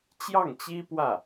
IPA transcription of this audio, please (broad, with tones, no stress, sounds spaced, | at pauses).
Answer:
t͡ɕ j ɑ˥˩ ŋ t͡ɕ i˥ p w ä˥˩